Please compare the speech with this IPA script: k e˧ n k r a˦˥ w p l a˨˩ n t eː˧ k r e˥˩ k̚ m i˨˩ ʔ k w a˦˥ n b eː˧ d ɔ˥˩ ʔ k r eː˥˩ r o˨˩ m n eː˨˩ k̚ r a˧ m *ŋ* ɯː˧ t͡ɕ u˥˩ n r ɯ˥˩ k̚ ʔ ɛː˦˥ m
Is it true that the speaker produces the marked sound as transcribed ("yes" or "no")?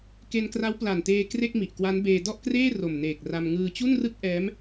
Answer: yes